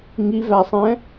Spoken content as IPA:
ŋ i v æ sˤ ɛ̃

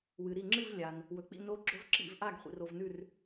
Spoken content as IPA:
w ɨ˩ ɾ i˧˩ ŋ͡ǁ ɨ˥˨ v lʲ a˩ n | w ɵ˩ k͡p ḭ˥˨ n o˧˥ ɡ͡ǁ ɵ˧˥ v ǁ ḭ˧˩ v ʔ a˥˨ ɡ χʷ ḭ˩ r o˧˩ v n ʉ˥˨ r

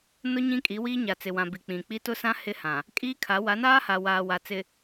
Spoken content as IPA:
n ʊ˦ ɲ ĩ˦ kʼ i˨˦ w iː˦ ɲ a˨ t͡s ɪ˨ w ã˨ b i˨ k͡p ĩ˨ k͡p i˦ t ʊ˦ s ã˦ h ɪ˦ h ã˨ | kʼ iː˦ kʰ a˨˦ w a˨˦ n aː˦ h a˨ w aː˨ w a˨ t͡s ɪ˨

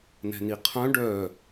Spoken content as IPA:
n ɛ̤ n i qʰ œ̃ ɖ œ

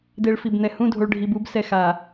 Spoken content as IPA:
d e˨ ɭ f i˨ b n̪ ɛ˨ h ũ˦˨ dʱ o˨ ɭ ɖʱ i˨ b u˨˦ b s ɛ˨ x a˨

